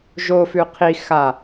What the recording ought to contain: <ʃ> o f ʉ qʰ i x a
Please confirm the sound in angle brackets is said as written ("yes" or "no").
no